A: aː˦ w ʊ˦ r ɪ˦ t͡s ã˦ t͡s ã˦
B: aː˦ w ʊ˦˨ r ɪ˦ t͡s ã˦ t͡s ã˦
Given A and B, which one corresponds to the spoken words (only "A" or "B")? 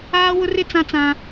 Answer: A